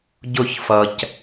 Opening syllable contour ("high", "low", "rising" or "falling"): falling